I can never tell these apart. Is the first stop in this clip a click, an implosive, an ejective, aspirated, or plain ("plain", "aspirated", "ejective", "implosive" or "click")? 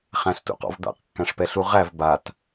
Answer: plain